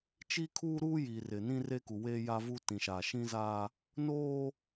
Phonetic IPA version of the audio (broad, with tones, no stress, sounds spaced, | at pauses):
t͡ʃ i˦ kʰ uː˦ ɾ u˦ j iː˨ r ɪ˨ n ĩ˦ r e˦ k u˨ w e˦ j a˦ v u˦ t ĩ˨ ʃ a˨ ʃ ĩ˦ z a˦ | n oː˦